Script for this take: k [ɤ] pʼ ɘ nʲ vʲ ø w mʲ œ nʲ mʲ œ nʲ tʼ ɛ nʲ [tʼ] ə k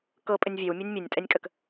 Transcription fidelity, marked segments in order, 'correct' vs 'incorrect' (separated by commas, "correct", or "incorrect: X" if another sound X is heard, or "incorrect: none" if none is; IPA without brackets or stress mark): correct, incorrect: kʼ